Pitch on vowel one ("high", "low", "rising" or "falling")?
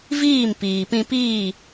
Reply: falling